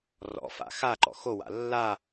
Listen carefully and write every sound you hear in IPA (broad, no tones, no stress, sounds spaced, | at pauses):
r ɔ̰ f a̰ x a ǃ ɔ̰ x o w a̰ lː a